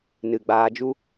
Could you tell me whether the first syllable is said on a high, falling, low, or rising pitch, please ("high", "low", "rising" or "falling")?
low